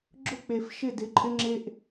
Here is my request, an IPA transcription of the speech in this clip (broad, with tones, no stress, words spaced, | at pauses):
ɡ͡ǁʊ˦k͡pe˨fʃɪ˦˨ dɪ˨˦ǃʼɪ˦ŋ͡ǁe˦ʔ